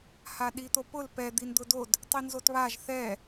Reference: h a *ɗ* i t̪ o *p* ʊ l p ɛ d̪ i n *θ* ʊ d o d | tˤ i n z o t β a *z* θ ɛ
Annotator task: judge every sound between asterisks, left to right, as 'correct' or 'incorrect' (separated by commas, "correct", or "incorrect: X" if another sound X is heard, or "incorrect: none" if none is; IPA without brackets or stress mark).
correct, correct, incorrect: d̪, incorrect: ʒ